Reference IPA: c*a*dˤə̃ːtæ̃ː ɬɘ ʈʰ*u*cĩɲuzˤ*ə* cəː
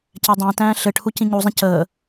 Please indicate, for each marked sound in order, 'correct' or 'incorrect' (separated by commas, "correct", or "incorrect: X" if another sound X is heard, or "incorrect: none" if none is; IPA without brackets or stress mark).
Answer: incorrect: æ, correct, incorrect: ə̃